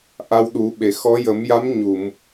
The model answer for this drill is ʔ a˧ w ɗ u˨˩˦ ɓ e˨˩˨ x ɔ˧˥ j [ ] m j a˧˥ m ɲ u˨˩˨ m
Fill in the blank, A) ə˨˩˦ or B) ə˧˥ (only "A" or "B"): A